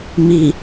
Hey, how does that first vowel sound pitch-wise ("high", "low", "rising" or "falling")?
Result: low